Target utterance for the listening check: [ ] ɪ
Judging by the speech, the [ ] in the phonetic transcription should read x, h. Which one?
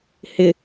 h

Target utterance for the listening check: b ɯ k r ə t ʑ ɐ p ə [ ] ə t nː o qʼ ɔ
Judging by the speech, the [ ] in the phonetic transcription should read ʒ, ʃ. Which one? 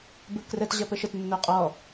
ʃ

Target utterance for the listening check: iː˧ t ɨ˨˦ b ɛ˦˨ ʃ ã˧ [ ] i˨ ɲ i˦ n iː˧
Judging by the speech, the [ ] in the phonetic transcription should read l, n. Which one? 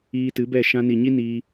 n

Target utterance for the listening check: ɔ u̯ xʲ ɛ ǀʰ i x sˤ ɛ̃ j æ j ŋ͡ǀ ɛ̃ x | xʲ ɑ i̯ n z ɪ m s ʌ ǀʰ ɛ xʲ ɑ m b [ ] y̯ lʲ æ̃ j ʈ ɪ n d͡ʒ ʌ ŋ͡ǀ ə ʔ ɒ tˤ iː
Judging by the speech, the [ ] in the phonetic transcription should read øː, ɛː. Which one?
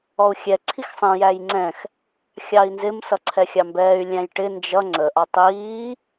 ɛː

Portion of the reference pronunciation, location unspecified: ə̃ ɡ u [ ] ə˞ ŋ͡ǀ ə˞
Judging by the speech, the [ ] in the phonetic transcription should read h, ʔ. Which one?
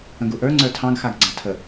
ʔ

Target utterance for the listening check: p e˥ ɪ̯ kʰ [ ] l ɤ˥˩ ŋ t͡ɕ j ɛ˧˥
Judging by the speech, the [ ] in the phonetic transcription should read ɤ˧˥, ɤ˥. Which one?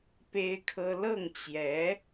ɤ˥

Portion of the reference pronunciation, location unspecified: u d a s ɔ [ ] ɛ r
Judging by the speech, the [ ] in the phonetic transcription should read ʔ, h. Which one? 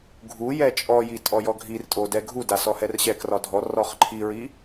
h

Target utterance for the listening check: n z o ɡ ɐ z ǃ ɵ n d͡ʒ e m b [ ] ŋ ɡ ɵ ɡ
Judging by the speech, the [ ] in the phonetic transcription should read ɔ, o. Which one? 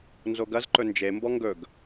ɔ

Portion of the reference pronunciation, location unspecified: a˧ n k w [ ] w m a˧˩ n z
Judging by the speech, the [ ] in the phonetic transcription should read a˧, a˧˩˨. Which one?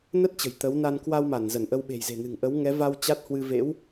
a˧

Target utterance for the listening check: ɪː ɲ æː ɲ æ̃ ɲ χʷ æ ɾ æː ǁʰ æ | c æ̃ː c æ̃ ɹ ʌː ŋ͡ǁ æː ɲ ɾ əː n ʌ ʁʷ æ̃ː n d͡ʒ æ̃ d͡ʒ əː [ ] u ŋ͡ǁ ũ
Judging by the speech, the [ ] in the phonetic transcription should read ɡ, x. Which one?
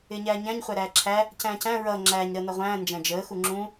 x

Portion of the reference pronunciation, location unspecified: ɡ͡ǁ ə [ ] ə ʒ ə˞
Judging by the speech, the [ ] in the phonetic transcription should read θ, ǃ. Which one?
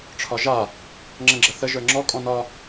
θ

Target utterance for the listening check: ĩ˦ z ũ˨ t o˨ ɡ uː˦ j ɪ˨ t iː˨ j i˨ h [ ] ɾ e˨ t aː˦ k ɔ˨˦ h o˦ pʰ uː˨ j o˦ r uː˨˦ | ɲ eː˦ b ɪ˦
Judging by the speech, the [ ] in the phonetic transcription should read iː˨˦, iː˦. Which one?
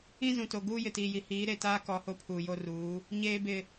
iː˨˦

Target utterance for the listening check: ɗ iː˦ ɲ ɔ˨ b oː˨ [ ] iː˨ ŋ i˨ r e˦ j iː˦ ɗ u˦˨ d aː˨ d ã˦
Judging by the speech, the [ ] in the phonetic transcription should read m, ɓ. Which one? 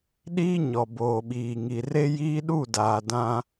ɓ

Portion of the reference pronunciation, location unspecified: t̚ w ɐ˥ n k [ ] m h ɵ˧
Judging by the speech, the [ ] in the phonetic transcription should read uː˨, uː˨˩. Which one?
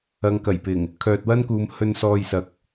uː˨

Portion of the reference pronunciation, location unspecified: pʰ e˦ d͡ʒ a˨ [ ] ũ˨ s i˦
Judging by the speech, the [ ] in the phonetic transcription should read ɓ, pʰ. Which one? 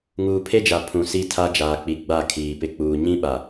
pʰ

